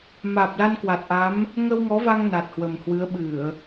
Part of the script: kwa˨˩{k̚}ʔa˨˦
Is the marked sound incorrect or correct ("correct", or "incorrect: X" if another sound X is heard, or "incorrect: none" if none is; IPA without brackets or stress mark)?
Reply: incorrect: t̚